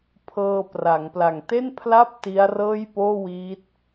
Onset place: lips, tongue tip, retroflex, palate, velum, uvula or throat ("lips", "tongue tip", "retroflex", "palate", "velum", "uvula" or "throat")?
lips